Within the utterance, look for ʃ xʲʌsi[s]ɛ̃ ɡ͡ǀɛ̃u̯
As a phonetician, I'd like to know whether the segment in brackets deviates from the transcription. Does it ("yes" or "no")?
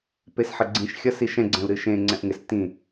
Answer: yes